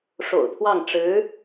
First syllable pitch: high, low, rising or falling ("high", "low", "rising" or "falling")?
low